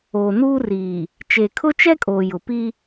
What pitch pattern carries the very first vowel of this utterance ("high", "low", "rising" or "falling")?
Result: low